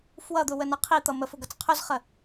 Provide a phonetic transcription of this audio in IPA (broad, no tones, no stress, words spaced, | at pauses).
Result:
fwʌd̪ʊwənʌ qʰit̪ʌ məfʊɡʌt͡s qʰʊzχə